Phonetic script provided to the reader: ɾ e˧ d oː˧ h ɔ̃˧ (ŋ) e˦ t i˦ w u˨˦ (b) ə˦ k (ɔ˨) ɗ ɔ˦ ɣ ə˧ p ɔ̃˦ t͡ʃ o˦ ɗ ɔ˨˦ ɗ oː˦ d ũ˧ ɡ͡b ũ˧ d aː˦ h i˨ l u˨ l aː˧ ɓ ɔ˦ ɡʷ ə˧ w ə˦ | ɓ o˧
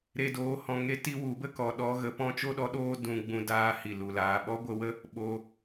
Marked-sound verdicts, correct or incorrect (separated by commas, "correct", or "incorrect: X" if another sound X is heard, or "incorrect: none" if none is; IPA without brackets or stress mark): correct, correct, correct